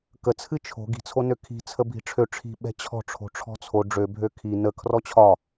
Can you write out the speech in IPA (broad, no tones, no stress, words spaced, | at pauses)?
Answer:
kət͡sʰɨ t͡ʃʰo̤ ɡi̤t͡sʰo nøkʰi̤ t͡sʰəbʱi̤ʈ͡ʂʰø ʈ͡ʂʰi̤ ɓɛ̤t͡ɕʰɔ̤ ʈ͡ʂʰo̤ʈ͡ʂʰɔ̤t͡sʰo ɖ͡ʐøbʱø kʰi nə kʰrɔt͡ɕʰɒ